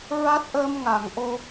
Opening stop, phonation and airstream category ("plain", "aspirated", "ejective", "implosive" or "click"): plain